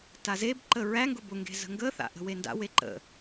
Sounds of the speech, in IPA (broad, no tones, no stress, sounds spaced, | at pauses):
t a z e b ǃ ə ɹ æ ŋ ɡ ʊ b ʊ ŋ ɡ e̤ z ə̤ ŋ ɡ ə θ a̰ ʔ ə̤ w e n d a̰ w e ǃ ə̰